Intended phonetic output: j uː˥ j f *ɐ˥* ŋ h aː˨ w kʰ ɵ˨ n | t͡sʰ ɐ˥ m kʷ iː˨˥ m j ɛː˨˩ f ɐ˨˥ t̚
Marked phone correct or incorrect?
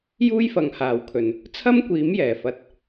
incorrect